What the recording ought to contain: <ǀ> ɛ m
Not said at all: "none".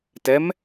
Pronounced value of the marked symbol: t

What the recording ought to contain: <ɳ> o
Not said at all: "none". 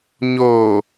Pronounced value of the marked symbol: ɲ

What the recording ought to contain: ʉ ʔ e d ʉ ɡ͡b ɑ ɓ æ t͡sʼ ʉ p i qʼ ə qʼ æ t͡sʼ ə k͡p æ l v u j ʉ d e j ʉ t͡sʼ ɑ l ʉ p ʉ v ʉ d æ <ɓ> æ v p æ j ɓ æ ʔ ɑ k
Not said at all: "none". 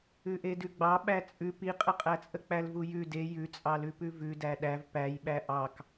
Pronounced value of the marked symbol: ɗ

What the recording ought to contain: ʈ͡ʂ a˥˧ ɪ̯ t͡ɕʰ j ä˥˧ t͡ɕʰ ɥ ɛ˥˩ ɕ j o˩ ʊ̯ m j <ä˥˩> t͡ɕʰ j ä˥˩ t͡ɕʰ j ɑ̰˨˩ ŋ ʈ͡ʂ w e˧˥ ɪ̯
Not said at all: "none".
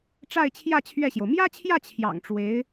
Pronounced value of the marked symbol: ä˥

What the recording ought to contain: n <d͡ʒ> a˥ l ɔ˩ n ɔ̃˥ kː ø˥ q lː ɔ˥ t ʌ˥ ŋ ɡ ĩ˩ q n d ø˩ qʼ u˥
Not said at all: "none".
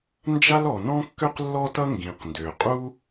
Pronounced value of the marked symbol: d͡ʒ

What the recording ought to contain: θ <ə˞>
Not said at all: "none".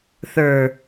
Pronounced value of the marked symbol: ə˞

